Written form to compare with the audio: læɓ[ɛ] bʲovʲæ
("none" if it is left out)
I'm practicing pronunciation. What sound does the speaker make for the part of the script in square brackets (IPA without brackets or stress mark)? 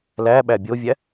æ